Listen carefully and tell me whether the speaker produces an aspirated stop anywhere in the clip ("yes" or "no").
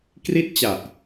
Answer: no